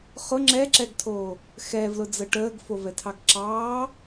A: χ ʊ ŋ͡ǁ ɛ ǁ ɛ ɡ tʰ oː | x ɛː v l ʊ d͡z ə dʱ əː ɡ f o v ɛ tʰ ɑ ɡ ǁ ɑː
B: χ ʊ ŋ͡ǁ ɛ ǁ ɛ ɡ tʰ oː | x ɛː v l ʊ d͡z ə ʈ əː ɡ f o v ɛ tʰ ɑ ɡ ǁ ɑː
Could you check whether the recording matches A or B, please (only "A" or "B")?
B